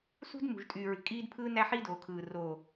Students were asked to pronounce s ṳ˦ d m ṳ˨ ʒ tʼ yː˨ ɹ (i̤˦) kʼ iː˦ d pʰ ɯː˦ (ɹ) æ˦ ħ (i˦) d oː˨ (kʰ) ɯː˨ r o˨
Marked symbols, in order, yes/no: no, no, yes, yes

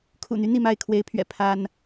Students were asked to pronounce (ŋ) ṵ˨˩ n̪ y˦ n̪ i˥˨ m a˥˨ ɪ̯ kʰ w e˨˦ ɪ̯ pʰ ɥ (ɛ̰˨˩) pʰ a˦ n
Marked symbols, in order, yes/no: no, yes

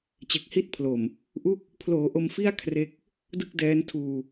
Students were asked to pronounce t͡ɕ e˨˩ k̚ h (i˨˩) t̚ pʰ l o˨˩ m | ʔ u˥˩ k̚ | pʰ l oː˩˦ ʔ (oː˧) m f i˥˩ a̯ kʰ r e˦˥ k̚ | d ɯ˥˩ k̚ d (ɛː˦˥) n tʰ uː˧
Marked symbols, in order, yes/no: no, no, yes

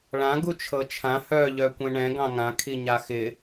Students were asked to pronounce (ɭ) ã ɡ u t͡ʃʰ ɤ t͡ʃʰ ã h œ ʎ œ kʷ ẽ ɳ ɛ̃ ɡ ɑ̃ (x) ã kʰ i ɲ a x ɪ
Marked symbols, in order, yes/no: yes, no

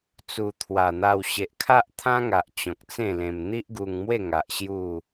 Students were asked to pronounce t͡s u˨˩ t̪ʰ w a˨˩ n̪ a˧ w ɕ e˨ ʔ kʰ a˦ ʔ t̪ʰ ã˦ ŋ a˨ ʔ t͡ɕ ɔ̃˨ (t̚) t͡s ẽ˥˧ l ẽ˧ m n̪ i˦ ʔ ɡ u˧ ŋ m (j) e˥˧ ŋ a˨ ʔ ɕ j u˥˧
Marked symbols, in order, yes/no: no, no

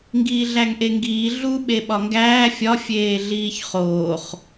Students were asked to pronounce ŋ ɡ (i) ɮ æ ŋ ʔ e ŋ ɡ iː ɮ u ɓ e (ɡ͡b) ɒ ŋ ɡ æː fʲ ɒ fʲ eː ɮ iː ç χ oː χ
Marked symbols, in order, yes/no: no, no

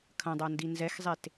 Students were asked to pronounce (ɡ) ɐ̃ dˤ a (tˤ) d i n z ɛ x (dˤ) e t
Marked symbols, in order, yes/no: no, no, no

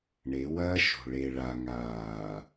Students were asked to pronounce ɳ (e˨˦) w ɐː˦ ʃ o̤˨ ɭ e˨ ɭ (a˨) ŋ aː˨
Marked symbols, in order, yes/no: yes, yes

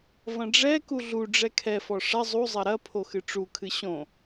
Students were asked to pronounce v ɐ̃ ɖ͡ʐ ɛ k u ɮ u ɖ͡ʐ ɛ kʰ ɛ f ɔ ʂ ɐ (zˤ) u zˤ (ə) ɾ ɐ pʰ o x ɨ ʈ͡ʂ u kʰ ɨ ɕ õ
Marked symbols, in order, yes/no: yes, no

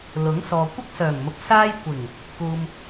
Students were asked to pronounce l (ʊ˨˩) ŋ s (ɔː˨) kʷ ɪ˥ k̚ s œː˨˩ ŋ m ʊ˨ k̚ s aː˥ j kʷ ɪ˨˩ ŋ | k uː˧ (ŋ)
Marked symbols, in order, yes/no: no, yes, no

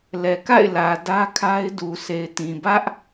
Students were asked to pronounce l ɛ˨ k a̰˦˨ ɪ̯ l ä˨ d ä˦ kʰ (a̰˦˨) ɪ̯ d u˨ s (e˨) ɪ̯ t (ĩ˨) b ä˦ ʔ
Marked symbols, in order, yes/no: no, yes, yes

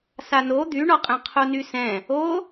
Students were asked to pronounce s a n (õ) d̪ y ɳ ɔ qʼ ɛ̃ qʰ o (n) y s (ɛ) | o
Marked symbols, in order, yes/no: no, yes, no

